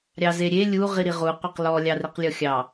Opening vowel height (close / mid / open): open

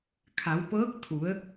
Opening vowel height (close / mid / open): open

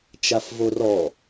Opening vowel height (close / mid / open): open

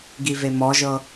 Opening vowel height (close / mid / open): close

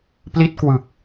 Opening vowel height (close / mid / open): close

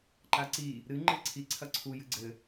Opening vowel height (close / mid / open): open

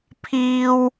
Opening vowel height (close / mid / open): close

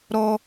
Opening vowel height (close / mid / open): mid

